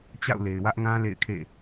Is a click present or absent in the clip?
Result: absent